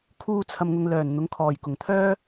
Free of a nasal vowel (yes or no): yes